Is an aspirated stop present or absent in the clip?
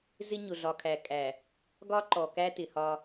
present